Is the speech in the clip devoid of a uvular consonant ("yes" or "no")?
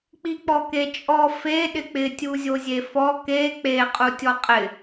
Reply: no